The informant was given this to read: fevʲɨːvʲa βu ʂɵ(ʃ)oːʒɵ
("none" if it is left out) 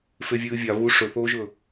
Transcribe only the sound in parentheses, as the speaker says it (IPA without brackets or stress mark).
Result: θ